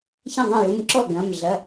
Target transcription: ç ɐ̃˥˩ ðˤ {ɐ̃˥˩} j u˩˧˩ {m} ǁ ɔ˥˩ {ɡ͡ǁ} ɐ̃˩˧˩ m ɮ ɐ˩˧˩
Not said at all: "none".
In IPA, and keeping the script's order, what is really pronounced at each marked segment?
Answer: ɐ̃˥˩, m, ɡ

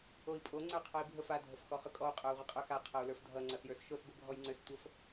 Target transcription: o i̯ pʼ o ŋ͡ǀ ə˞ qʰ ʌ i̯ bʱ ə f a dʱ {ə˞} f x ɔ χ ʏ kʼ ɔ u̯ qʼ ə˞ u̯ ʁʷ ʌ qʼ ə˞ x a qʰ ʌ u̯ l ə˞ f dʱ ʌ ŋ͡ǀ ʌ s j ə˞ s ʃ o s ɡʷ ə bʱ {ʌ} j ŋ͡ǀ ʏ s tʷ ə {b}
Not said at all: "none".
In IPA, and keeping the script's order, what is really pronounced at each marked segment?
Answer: ə, ɔ, f

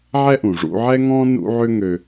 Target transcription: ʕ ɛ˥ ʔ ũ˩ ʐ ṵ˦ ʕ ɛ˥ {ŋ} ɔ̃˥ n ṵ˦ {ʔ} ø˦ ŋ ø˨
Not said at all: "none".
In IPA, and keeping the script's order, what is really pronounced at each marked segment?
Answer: ŋ, ʕ

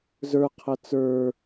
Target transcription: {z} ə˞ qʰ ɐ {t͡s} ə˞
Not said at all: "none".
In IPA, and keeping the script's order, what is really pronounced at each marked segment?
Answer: z, t͡s

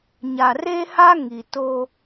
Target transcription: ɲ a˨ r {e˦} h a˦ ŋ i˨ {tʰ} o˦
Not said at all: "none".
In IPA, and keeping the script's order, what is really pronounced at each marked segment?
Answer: e˦, t

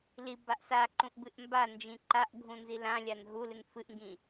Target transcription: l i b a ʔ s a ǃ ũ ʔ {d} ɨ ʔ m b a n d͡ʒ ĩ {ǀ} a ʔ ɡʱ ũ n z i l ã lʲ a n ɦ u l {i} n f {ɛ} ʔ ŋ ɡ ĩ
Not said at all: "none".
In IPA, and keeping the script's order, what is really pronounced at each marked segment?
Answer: b, ǃ, ɨ, ɨ

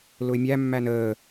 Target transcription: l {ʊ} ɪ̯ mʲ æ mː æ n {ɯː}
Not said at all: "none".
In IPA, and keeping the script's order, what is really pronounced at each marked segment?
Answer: ʊ, əː

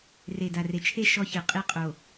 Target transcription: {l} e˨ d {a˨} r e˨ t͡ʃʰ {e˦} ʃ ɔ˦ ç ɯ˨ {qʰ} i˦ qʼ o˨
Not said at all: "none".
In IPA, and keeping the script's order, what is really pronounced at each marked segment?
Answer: r, a˨, e˦, qʼ

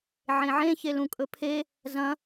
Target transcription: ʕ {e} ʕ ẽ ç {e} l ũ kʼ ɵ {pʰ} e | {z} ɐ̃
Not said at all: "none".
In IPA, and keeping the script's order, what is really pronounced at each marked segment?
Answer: ẽ, e, pʰ, z

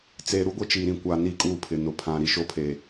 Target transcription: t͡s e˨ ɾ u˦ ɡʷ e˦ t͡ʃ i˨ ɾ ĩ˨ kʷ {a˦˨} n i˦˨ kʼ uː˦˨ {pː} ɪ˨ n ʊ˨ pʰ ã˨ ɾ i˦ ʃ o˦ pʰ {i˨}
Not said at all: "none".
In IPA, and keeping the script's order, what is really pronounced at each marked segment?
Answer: a˨, pʰ, e˨

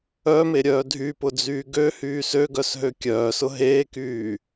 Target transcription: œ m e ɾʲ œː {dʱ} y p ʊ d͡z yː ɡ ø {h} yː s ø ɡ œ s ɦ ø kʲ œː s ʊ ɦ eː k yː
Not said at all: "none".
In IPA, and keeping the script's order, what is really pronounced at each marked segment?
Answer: dʱ, h

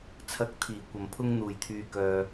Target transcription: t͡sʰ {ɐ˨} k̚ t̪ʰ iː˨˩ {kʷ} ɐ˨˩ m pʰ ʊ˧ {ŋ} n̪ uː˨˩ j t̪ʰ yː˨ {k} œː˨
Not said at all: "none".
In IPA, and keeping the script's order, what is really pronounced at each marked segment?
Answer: ɐ˨, kʷ, ŋ, k

